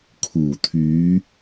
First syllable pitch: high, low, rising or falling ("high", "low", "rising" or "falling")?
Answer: low